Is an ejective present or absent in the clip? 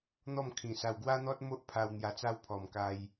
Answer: absent